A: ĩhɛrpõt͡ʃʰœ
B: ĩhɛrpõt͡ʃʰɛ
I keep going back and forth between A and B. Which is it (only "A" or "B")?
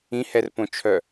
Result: A